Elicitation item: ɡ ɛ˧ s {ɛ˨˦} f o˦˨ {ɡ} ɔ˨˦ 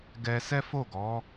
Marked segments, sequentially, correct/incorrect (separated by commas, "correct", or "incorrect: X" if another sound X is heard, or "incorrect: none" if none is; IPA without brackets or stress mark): incorrect: ɛ˦, correct